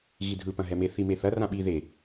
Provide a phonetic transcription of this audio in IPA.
ɣidʱɯ pɐ̃ɦɛme θimeθɐ rãɓi ðe

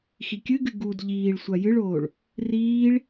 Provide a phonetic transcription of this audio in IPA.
xikʲɨɡɨ ɡud ʎiːɭsʷa jɨɭoːɭ | riːɭ

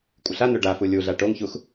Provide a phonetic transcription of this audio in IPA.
kʷʼɪɬano ɖafu lʲuɮa ʈoŋçux

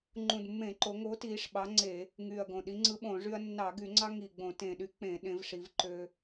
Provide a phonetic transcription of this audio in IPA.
ŋ͡ǃũ˨˩dmːẽ˧˩˧ǃo˩˧ ŋo˨˥tiː˩˧ʂ ɓɑ˨˥ŋ͡ǀe˧˩˧ | ŋyː˨˩ɐ̯ɡõ˨˩ɗi˨˥ŋ͡ǀɯ˦ ɓõ˧˩˧ʐy˦ɐ̯ nːɑ˧˩˧ɡy˧˩˧ŋ͡ǀɑ˦ ŋi˨˩ɡ͡bõ˧˩˧ tẽ˨˩ɗy˦ k͡pẽ˧˩˧ɗẽ˩˧v ʂi˩˧vǃø˦

